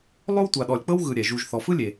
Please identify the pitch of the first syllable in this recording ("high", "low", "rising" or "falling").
high